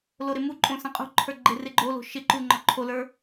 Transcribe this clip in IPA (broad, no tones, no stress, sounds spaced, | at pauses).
l o ɾ ɪ m u ǃʼ õ s ɐ̃ qʼ ṳ ǃʰ ə˞ ɡ͡ǃ ɪ r ɪ ɡ͡ǃ o l o̤ ʃ ɪ ǃ u ŋ͡ǃ ɔ ǃʰ o l ə˞